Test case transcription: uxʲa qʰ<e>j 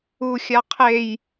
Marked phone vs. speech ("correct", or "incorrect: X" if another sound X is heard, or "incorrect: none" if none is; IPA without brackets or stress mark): correct